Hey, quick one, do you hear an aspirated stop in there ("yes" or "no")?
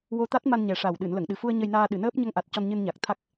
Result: yes